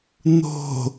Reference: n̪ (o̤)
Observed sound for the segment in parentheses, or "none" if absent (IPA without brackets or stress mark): o̤